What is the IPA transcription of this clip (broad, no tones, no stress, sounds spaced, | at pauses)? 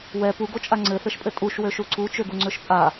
w ɛ p u ɡ o t͡ʃʼ a ŋ͡ǀ ɘ θ ɘ ʃ pʼ ɘ tʼ u ʃ w ø ʃ u ǀ u t͡ʃ ø ɡ u ŋ͡ǀ ø ʃ pʼ a